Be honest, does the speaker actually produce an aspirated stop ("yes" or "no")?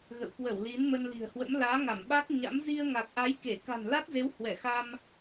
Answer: no